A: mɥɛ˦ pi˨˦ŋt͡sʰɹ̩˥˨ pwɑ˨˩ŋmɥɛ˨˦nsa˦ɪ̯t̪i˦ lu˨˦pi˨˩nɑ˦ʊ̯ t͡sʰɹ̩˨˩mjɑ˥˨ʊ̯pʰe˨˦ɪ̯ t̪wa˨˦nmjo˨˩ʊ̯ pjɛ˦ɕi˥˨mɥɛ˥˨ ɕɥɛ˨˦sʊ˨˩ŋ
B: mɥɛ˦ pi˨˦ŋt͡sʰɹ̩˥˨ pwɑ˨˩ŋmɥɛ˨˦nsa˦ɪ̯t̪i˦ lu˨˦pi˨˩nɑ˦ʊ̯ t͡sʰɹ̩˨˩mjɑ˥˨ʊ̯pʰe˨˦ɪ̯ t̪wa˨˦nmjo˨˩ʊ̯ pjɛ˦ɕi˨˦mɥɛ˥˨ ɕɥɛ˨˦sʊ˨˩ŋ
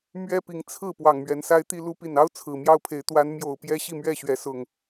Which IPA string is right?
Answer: A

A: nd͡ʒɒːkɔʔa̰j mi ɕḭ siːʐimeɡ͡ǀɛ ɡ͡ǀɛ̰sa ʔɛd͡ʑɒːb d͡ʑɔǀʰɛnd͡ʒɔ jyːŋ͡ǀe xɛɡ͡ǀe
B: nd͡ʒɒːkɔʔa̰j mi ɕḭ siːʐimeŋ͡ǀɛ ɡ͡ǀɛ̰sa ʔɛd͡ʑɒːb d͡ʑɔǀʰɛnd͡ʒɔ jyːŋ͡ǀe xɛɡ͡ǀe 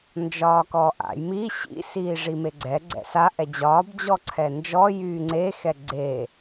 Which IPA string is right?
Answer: A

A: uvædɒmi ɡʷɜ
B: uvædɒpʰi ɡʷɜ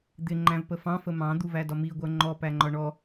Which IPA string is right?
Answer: A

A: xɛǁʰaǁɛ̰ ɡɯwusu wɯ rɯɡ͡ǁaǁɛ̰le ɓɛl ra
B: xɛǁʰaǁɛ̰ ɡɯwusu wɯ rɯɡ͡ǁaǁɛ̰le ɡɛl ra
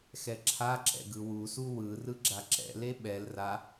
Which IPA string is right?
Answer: A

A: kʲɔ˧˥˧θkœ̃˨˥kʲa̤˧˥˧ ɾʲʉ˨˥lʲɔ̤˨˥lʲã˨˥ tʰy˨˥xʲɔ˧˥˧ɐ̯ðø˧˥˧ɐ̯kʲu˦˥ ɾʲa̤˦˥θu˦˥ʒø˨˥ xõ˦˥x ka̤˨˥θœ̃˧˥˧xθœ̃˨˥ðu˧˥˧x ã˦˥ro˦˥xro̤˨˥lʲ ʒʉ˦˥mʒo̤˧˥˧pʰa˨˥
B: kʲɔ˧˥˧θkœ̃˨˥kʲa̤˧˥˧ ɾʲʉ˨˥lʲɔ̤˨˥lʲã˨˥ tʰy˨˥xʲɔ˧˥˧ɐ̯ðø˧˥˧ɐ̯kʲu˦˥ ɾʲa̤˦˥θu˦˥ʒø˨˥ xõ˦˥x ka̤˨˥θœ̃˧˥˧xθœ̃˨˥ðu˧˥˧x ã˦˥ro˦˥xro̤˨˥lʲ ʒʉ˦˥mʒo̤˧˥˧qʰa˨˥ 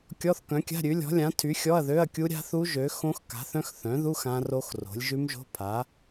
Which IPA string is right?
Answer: A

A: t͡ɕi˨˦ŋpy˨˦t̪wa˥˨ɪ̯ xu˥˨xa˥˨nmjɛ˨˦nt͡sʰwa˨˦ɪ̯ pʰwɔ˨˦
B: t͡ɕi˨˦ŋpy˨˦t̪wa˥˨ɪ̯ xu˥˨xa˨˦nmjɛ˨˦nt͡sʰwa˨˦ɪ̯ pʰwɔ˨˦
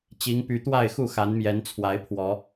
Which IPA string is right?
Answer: B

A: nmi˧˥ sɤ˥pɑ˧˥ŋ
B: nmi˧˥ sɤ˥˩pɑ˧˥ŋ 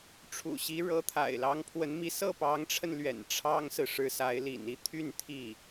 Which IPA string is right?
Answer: B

